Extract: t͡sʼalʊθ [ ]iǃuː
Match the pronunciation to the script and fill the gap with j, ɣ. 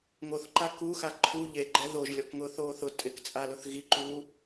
ɣ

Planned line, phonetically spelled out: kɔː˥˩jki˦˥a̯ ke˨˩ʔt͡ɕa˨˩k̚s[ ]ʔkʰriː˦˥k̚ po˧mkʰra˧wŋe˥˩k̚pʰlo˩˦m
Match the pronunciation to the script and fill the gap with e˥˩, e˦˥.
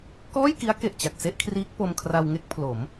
e˥˩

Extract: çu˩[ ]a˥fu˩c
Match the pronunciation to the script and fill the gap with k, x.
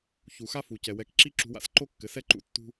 x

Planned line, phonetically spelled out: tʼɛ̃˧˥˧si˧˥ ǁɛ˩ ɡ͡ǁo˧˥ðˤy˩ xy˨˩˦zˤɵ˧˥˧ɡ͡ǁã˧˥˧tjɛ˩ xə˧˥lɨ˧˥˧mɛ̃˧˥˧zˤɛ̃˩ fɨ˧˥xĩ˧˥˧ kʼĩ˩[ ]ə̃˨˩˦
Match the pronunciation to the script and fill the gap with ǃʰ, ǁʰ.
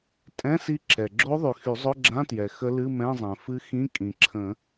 ǁʰ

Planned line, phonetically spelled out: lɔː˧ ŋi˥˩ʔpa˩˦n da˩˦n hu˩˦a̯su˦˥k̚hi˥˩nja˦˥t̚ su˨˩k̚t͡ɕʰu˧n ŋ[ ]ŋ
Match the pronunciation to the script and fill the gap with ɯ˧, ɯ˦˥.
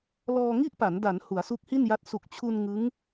ɯ˦˥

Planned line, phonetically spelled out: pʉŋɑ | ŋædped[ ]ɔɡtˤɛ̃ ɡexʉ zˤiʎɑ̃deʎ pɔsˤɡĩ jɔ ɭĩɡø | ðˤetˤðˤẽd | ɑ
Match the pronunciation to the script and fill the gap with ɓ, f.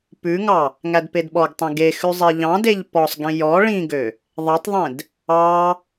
ɓ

